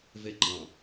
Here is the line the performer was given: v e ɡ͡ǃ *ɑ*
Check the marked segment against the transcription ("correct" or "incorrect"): incorrect